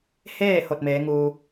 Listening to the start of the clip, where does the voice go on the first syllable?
falling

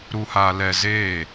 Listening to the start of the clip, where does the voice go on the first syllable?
low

